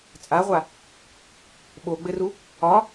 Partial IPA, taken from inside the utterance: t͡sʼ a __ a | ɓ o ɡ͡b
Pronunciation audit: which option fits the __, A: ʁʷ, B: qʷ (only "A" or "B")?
A